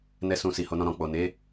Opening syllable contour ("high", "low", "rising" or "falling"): high